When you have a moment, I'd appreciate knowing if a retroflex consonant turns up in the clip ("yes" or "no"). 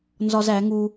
no